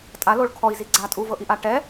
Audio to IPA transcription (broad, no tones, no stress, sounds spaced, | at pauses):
tʼ a l o ɭ kʰ ɔ i̯ z i ɡ͡ǀ a tʼ u v ɤ ʔ i ʔ a ʈ ɛ